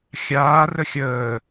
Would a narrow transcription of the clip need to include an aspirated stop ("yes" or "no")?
no